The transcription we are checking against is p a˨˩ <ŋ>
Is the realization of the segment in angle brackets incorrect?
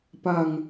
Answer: no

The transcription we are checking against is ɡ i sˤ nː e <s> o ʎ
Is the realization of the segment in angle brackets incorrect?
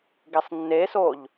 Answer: no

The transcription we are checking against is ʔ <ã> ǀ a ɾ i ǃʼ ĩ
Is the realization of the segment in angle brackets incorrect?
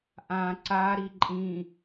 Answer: no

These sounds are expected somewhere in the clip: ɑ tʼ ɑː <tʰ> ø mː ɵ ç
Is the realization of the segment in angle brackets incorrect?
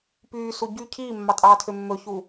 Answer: no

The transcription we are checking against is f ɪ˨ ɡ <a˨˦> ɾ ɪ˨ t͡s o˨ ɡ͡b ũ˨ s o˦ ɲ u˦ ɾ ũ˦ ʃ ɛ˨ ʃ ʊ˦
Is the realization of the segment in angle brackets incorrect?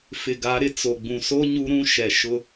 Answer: no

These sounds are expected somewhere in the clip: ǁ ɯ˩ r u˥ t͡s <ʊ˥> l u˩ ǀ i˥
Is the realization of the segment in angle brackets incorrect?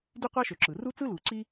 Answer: yes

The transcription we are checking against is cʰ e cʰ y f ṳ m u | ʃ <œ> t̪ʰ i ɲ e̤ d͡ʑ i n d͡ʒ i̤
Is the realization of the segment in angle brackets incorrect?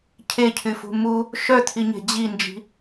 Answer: no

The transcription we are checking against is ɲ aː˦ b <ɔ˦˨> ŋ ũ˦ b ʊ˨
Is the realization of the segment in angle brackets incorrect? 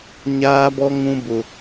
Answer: yes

